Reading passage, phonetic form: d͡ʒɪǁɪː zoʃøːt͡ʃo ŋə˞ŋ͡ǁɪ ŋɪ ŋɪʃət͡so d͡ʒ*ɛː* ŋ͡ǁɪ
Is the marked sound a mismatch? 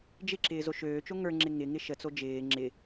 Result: yes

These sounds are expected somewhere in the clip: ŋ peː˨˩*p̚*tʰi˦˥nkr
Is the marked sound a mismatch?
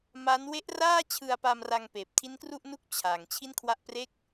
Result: no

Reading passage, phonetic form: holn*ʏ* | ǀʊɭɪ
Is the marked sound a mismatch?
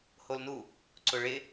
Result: yes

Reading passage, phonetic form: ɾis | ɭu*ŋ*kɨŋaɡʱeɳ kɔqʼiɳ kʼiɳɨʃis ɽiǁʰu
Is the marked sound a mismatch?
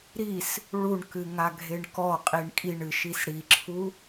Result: yes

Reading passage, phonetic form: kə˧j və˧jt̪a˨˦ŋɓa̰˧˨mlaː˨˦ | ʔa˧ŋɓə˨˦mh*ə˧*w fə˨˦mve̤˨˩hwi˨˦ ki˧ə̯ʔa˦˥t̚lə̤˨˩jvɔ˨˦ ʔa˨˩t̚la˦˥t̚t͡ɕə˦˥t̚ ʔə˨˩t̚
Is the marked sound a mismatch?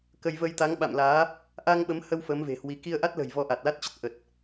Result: no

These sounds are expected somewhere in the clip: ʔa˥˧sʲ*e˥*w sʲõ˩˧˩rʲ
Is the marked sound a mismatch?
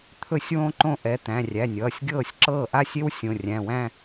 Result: no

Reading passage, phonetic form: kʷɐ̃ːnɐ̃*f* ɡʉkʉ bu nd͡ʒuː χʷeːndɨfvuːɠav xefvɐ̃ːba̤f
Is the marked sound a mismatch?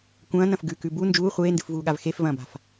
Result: no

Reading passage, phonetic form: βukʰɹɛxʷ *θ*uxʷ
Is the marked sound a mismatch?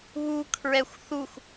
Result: no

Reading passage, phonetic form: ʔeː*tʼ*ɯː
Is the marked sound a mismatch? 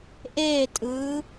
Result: no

